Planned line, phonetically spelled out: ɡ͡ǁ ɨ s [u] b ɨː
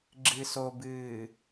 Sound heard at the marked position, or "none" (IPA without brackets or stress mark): o